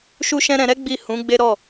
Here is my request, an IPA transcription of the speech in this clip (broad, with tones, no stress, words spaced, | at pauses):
ʃu˦ʃɛ̃˦ ɾɛ̃˧ɾɛ˦ ɡ͡bi˦˨hũ˨˦ ɡ͡be˦ ɾɔ˦˨